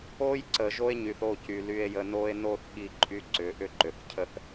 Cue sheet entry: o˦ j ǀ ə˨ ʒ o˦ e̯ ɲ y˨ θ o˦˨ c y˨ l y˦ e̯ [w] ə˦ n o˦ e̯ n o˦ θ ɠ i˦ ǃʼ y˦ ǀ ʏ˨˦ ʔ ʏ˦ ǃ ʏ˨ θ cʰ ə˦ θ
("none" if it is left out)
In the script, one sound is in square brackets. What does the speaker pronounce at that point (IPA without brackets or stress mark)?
j